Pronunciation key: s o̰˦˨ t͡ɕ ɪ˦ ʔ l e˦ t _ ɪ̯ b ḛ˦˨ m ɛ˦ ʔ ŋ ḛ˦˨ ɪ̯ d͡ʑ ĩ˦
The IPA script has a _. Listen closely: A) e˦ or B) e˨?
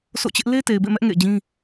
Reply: B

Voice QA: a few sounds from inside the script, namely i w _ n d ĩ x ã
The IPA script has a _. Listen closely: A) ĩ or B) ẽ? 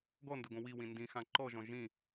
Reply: A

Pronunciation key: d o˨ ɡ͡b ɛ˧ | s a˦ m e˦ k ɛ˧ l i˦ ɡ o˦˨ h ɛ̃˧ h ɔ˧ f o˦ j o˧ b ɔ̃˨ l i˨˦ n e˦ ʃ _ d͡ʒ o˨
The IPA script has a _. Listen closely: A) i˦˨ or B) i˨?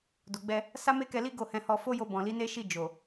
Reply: A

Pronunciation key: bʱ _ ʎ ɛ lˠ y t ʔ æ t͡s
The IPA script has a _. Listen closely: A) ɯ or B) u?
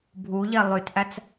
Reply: B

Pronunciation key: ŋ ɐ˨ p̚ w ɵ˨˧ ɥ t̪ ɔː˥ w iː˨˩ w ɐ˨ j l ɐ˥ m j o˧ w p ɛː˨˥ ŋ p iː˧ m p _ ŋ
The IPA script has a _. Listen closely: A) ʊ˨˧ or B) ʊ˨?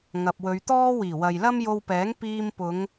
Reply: A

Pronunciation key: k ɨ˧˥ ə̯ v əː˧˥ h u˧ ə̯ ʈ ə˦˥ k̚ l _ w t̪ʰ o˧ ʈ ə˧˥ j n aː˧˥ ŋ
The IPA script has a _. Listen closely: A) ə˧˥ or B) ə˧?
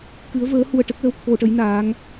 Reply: A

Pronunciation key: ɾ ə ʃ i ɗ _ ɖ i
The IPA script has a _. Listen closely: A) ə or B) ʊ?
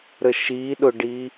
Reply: B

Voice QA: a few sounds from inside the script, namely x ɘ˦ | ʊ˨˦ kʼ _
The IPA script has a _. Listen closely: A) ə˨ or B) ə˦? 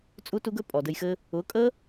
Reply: B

